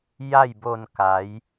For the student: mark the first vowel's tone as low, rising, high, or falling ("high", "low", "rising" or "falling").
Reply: falling